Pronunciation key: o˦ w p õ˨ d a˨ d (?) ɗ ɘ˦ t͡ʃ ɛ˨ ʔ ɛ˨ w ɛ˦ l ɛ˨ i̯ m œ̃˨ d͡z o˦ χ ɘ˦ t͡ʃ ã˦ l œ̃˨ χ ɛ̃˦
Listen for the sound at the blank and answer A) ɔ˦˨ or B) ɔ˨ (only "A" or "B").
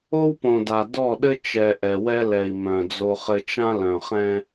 A